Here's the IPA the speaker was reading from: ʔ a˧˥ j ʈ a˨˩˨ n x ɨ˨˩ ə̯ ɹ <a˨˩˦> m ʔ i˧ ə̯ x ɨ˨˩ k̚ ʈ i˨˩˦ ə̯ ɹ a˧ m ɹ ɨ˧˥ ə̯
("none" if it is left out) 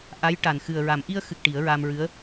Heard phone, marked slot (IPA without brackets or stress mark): a˨˩˦